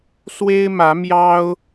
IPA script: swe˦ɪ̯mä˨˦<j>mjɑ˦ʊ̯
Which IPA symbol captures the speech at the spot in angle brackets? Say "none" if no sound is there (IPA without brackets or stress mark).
none